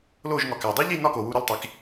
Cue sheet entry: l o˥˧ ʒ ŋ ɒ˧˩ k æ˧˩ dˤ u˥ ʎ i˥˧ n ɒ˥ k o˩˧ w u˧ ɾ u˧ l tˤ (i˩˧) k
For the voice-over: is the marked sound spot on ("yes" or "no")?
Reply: yes